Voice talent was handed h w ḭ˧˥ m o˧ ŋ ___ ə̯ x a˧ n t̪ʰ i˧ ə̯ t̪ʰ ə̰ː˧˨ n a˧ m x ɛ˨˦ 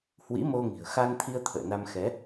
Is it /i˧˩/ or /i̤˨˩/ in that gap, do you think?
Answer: i̤˨˩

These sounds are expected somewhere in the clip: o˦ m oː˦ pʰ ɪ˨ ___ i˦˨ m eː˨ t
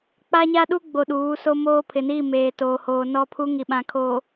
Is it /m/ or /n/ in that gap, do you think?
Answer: n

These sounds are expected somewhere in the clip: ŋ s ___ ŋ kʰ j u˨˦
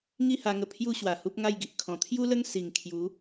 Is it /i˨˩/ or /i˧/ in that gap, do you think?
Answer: i˨˩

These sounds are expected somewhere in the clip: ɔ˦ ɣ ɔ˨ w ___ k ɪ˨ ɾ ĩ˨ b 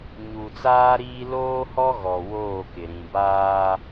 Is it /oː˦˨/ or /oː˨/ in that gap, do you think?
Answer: oː˦˨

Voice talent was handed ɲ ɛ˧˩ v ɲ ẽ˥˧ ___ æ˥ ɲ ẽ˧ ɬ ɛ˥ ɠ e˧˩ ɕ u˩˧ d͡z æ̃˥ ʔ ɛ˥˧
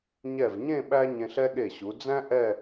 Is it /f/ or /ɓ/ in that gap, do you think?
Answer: ɓ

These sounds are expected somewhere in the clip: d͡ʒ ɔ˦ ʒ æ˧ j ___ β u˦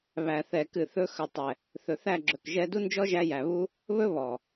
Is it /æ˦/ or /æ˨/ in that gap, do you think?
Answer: æ˨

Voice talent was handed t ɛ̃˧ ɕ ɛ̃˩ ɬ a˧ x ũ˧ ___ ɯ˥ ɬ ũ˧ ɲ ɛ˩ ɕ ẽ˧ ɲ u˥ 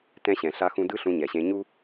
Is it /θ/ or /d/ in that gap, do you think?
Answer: d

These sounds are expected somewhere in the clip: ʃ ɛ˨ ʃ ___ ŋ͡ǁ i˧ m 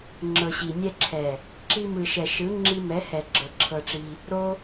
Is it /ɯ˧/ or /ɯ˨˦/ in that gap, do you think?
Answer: ɯ˨˦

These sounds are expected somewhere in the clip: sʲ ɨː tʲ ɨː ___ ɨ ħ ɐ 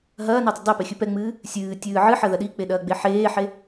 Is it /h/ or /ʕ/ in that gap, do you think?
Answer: ʕ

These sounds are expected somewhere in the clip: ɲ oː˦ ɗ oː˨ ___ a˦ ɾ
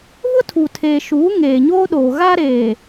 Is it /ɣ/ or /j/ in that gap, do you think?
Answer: ɣ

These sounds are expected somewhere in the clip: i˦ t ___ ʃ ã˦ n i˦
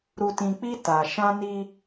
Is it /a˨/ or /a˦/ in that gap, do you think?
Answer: a˨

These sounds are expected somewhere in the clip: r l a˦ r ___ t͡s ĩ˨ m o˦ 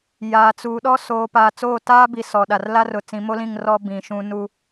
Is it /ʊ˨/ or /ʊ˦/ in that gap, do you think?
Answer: ʊ˨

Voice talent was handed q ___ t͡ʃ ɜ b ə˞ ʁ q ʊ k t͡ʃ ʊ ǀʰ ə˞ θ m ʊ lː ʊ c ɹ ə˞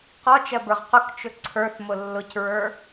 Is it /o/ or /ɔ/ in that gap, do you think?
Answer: ɔ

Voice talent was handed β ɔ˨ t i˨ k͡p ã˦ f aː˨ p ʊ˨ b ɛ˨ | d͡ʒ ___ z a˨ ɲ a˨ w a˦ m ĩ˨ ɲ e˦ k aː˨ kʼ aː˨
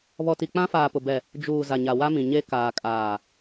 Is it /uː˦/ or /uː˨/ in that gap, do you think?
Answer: uː˨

